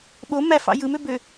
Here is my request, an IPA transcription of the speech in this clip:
ɓ o m æ f ɑ̰ j ɯ m ø b ø

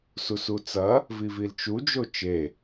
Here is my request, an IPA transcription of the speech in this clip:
s u s u t͡s ɐ | v i v i l t͡ʃ u d͡ʒ o t͡ʃ e

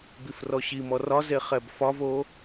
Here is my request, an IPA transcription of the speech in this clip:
b i f r ɔ ɕ i m ɔ r ɒ z e χ ɛ b f ɒ v o

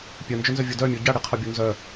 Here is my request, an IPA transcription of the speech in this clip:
pʲ œ n d͡ʒ ø n z œ vʲ o d œ mʲ o ɟ a ɽ i qʰ ɔ bʲ o n z œ

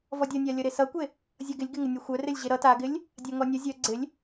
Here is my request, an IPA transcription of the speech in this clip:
v ɔ dʲ ʌ nʲ a lʲ ʌ ɾ e s ʌ kʷ e | zʲ ʌ ɡ ɪ lʲ ɡ ɪ ŋ ɪ nʲ ʌ xʷ œ r ɪ lʲ ʑ e ɾ ʌ t a ɡ ɪ lʲ | dʲ a ŋ ɔ nʲ ʌ zʲ œ ɡ͡ǀ ɪ lʲ

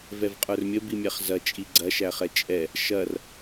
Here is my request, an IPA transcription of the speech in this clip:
v ɛ v qʼ ə˞ r mʲ ə b i mʲ æ χ z ɐ t͡ʃʼ i ɡ͡ǀ ɐ ʃ æ χ ɛ t͡ʃʼ ɛ | ʃ ɐ r

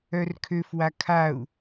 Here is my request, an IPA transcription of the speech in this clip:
œ r kʰ ø f w a kʰ a u̯

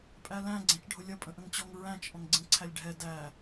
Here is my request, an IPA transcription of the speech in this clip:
pʼ æ l æ̃ ɡ͡ǀ æ̃ t͡ʃ ɖʱ ʊ lʲ ʌ pʼ ə̃ ʔ ə̃ ŋ t͡ɕ ɔ ŋ ɹ æ̃ t͡ʃ ʔ ɔ̃ ŋ ɡ͡ǀ ĩ ǀʰ æ lʲ ɖʱ ɛ d æ

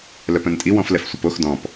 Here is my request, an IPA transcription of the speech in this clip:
l œ p œ̃ n tʼ i w ɔ̃ f l ɛ f sʷ ə p o x d ɔ̃ p

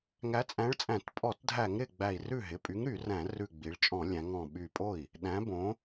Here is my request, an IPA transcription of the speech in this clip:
ŋ æ˨˥ t͡sʼ æ̃˨˥ ɭ t͡sʼ æ̃˧˩˧ t pʼ ɔ˧˩˧ t dʱ æ˧˩˧ ŋ ɾ ɪ˧˩ ɡ͡b æ˧˩ i̯ r ʉ˥˩ ɦ ɪ˩˧˩ pʼ y˨˥ ŋ ɾ y˧˩˧ r æ̃˧˩˧ r ʉ˧˩ ɡ͡b i˩˧ ɭ t͡ʃʼ ɔ̃˧˩˧ lʲ æ̃˩˧ ŋ ɔ̃˧˩ ɓ y˧˩ pʼ o˥˩ i̯ | ɗ æ̃˨˥ b õ˨˥

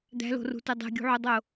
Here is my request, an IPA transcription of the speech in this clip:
d̪ æ̤ l o̤ r ṳ t e dˤ e̤ ɡʲ ṳ ʕ u dˤ o

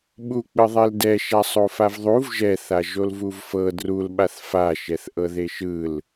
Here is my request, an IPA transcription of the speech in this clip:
ɓ u k͡p ɯ ðˤ e l d ɛ ʃ a sˤ o f a v ðˤ u v ʒ ɛ θ a ʒ o l v u v f ɤ d r u l ɓ a θ f a ʃ ɛ θ ʔ ɤ ð e ʃ ɯ l

